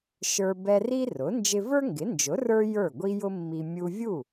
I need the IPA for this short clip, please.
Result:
ʃ ə˞˧ b ɛ˧ r i˥ r ʊ˩˥ n d͡ʒ ɪ˧ v ə˞˥ ŋ ɡ ɪ˩˥ n d͡ʒ ʊ˩˥ r ə˞˥ j ə˞˥˩ ɡʷ i˥ j ʊ˥ mː i˧ mʲ u˧ vʲ u˥˩

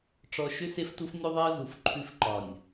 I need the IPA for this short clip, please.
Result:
ʈ͡ʂ ɔ˨ ʃ ʏ˦ s e˦ f t u˦ f nʲ u˦ ðˤ e˦ ə̯ z u˨ f ǃʰ ʉ˦ f ǃ ɒ˨ nʲ

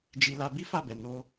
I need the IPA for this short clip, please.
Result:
d͡ʒ i˧ l a˧ b i˦ f a˦˨ b ɛ˨ n o˧

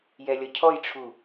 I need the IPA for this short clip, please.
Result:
j ɛ lʲ ʌ cʰ ɔ j ʈ͡ʂʰ u

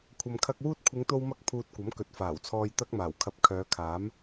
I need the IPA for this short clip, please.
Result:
kʷʰ ɐ˨ m kʰ ɐ˧ k̚ w uː˥ t̚ kʷʰ ɪ˨˧ ŋ t̪ o˧ w m ɐ˧ k̚ pʰ uː˨ t̚ kʷ ɐ˨˥ m k ɵ˨˥ t̚ f aː˨˩ w t͡sʰ ɔː˧ j t̪ ɐ˥ k̚ m aː˨˩ w kʰ ɐ˧ p̚ kʰ œː˨˧ kʰ aː˨˥ m

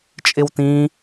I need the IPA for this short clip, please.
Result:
t͡ʃʼ ɪ w t ĩ

